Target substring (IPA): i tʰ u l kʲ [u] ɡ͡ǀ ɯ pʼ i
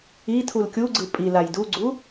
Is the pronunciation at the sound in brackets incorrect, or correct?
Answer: correct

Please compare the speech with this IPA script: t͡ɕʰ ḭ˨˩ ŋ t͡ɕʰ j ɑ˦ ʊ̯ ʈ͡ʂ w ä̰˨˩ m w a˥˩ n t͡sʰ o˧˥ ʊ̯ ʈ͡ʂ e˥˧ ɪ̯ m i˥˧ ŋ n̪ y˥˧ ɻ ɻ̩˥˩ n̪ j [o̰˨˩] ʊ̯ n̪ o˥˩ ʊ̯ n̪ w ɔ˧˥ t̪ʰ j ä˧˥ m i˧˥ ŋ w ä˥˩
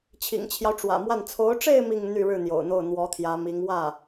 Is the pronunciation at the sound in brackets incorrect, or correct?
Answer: correct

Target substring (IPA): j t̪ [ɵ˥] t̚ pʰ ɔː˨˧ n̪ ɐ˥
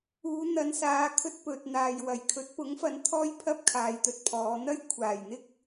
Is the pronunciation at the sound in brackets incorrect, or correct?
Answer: incorrect: ɵ˧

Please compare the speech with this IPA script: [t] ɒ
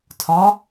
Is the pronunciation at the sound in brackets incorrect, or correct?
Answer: incorrect: tʰ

